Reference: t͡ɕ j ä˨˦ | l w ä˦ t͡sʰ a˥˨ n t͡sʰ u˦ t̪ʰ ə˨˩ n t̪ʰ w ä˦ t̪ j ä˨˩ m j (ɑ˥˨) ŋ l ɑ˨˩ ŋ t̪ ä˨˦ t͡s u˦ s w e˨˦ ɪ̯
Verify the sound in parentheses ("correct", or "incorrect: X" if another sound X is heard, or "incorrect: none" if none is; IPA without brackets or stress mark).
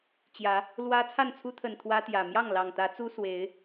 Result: correct